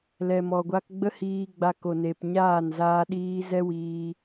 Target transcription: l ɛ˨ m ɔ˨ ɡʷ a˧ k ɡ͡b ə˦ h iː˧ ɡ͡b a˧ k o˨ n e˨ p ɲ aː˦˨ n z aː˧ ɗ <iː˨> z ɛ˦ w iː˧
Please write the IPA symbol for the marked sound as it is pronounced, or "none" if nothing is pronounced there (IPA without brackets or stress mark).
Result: iː˧